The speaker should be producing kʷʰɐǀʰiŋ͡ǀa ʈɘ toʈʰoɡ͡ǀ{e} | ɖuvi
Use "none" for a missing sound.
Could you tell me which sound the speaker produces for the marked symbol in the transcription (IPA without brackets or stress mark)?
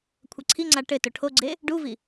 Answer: e